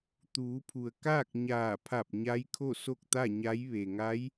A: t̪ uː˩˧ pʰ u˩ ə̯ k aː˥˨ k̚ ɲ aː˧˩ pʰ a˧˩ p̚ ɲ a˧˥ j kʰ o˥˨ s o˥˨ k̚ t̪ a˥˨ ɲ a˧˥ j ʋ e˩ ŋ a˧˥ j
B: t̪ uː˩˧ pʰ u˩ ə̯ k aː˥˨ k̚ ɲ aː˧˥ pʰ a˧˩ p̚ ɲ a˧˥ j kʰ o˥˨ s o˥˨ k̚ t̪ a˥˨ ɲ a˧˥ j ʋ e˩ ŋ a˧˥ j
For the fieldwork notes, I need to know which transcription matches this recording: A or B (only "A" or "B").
A